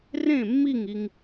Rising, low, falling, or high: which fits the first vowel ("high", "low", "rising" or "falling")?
falling